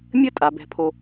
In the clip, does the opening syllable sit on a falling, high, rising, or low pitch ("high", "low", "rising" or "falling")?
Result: high